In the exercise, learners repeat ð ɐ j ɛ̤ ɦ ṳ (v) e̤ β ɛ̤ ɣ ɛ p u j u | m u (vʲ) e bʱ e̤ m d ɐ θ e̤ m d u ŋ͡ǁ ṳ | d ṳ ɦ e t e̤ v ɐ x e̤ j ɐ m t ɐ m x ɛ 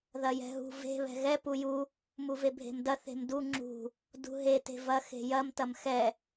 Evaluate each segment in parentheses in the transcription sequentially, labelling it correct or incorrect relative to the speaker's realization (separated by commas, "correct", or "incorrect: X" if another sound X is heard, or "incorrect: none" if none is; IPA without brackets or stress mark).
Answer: correct, incorrect: v